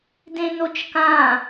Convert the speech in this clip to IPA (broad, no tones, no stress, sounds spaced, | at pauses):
d ẽ n o t͡ʃ k ã